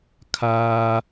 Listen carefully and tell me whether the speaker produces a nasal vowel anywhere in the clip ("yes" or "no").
no